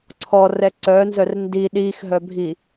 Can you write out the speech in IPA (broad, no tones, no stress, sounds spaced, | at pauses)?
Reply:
ǀʰ ɔ r ɛ ǀ œ n z œ r n d i ɗ i x ɦ œ bʱ i